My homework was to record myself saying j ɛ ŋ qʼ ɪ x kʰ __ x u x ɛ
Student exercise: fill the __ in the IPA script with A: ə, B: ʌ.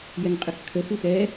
A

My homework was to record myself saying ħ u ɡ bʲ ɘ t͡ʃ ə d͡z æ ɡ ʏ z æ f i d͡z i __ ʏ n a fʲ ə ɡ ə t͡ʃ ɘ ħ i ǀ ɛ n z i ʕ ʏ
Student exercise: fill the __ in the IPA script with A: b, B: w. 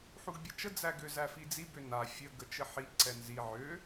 A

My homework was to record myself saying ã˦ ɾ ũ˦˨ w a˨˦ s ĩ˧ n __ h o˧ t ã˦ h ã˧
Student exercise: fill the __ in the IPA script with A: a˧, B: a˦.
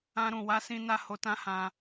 A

